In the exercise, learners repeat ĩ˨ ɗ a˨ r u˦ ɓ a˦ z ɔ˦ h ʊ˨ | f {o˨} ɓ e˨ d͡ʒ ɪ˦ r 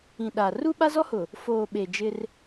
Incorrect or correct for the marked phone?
incorrect: oː˨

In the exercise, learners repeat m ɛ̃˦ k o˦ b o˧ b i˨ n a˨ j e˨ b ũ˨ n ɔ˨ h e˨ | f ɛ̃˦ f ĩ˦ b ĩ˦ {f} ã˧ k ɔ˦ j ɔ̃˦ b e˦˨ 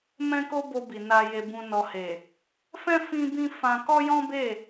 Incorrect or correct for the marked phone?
correct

